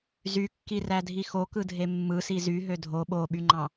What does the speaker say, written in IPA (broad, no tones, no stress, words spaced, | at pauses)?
zykːirædʱi xokɯ dʱemːɯsi zy ɦødʱo ɓoɓyŋ͡ǃɑ̃